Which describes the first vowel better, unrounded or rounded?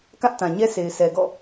unrounded